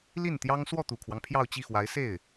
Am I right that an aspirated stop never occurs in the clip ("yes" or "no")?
no